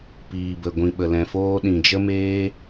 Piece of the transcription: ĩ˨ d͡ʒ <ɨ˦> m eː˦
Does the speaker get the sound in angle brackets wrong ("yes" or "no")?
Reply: yes